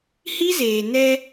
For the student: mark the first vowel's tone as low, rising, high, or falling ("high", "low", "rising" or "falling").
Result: high